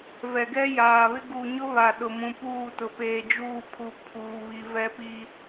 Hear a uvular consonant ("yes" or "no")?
no